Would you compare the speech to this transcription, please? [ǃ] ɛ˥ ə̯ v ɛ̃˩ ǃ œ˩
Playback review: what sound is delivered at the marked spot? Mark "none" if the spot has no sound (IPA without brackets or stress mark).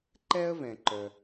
ǃ